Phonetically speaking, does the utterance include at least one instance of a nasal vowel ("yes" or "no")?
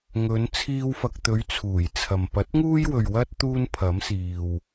no